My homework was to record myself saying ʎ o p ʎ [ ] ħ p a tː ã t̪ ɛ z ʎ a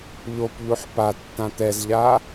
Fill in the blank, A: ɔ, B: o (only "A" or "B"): B